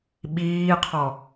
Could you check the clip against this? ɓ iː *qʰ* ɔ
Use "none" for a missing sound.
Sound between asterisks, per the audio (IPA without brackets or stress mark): qʰ